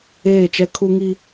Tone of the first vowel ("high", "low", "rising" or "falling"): falling